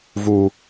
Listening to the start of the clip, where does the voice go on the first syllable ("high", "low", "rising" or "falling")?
high